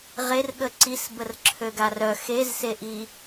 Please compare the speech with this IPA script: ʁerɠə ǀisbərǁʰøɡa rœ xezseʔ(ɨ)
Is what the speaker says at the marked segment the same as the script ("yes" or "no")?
no